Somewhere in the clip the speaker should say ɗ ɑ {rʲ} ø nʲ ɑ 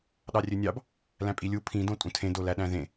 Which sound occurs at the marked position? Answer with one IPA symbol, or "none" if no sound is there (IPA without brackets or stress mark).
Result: rʲ